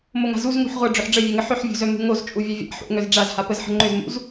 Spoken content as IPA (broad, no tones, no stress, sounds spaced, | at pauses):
m o ŋ a̤ z u z ŋ ṳ ħ ʁʷ ʌ ɖ͡ʐ ʏ ħ ɖ͡ʐ ə vʲ œ ŋ ə ħ ʏ ħ vʲ ṳ z œ m ṳ ŋ o z t͡ʃʼ u vʲ œ vʲ a̰ ħ ṵ ŋ œ z ɖ͡ʐ a z h a p ə z ħ ə̤ ŋ͡ǃ ʏ z m ṵ z